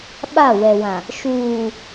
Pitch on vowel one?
falling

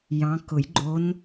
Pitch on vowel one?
rising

